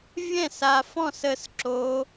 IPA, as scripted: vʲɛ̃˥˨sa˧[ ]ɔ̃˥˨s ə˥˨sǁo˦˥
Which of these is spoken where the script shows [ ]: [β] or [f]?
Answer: f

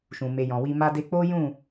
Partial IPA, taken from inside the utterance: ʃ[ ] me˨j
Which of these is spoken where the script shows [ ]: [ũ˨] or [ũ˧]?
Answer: ũ˨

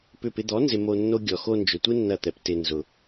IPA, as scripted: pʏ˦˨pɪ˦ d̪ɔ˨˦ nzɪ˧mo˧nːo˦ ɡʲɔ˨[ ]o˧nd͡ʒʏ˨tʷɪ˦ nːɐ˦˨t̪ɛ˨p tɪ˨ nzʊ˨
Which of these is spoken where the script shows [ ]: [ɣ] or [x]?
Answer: x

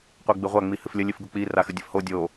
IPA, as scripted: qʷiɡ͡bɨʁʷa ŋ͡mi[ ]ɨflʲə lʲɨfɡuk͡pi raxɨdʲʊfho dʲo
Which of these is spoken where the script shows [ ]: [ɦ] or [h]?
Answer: h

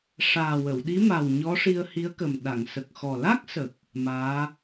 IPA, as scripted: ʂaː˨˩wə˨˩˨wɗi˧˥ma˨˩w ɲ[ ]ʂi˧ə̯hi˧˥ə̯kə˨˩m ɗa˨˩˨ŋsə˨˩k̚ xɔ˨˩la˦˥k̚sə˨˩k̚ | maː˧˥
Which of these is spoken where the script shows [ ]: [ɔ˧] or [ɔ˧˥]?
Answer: ɔ˧˥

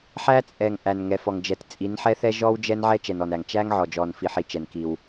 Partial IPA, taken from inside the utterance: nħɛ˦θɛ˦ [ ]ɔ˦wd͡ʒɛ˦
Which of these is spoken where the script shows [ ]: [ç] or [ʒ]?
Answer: ʒ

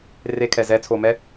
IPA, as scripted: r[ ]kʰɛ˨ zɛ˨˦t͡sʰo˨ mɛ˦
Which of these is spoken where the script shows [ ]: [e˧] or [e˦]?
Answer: e˧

